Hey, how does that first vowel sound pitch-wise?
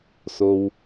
low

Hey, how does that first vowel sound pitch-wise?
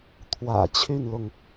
low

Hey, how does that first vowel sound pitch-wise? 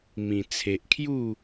low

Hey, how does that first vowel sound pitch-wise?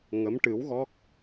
rising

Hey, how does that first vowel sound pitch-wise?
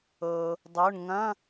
low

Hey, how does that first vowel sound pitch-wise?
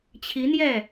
rising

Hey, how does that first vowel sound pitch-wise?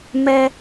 high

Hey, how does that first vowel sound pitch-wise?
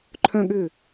falling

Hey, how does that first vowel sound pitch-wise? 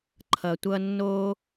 low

